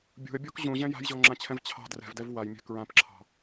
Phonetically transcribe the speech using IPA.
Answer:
bʲṳə̯bʲɔk ʑũʑɛ̃ ja̤jʑɔŋ͡ǁãt͡ɕʰɛ̃v t͡ɕʰɑ̤ drɛ̤vdɛv wajmʲɛ̤ kɹãpǁʰɑ̤

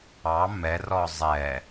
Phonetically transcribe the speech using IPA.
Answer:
ɑ mɛ rɔzˤɛ

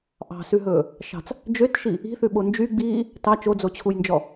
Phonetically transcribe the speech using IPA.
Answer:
ʔɑ̤sʉɦɵː | ʃɑ̤t͡s | d͡ʒøtʃi | i̤θʉɓo nd͡ʒyɡ͡biː | tɑ t͡ʃod͡zot͡ɕʰujnd͡ʒɔ

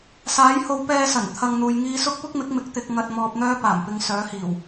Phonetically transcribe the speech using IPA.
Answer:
saː˨˥jho˨˧w pɛː˥sɐ˨˩n t̪ʰɐ˨ŋ n̪uː˨jŋiː˧sʊ˥k̚ pʊ˥k̚mɪ˨˥k̚mɪ˨˥k̚ t̪ɪ˨˥k̚ ŋɐ˧t̚mɔː˧p̚n̪œː˥ paː˨˩mpɪ˨˧ŋ sœː˨˥hiː˨˩w

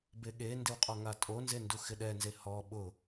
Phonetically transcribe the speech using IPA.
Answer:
beɠendɪw qʼɔŋatʼonze nduxɪɗɛnze hɔ ɓʊ

